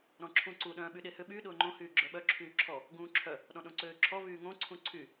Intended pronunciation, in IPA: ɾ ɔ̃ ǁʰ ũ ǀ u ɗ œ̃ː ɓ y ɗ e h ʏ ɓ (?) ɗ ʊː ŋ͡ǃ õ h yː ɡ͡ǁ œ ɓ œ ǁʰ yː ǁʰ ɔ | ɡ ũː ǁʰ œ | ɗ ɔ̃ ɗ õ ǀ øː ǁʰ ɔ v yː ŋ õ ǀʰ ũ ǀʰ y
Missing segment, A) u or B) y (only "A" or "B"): B